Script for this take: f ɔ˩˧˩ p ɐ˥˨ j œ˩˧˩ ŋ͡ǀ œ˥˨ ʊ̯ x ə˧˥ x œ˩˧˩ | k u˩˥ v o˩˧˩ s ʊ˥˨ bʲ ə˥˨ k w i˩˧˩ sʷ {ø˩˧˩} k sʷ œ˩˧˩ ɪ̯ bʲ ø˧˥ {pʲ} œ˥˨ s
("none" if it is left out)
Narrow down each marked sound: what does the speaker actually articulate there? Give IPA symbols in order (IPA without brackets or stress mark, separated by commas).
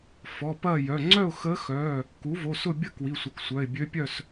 ə˩˧˩, pʲ